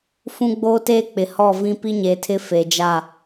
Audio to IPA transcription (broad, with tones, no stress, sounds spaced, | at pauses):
f ũ˦ ɡ͡b oː˦ t eː˦ k͡p ɪ˨ h ɔ˦˨ v ĩ˦ p i˦ ɲ e˨ tʰ ɪ˦ f e˨ d͡ʒ a˦˨